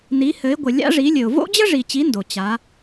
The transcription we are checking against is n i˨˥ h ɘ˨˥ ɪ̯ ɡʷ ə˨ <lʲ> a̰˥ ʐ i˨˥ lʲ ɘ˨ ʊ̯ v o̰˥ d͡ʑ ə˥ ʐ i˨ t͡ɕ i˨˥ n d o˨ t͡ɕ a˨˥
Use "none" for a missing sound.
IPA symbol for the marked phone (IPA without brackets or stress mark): lʲ